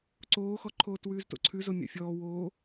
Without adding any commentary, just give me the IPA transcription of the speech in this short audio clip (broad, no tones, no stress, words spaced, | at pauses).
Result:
ǀoːxɔǃʰoːt wʉːzto̰ǀʰʉzo mʲa̰fʲɔː woː